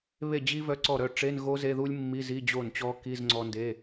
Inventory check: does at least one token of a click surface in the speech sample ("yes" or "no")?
yes